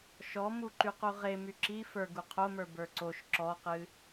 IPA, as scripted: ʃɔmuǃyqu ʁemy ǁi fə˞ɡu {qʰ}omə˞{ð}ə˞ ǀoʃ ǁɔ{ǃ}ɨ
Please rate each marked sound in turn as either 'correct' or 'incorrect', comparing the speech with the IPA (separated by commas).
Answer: correct, incorrect, incorrect